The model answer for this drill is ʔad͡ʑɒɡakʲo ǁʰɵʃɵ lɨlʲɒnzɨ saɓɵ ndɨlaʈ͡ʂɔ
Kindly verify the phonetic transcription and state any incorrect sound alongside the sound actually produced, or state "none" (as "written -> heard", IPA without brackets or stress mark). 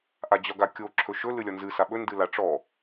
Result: none